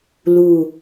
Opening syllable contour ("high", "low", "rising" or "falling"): low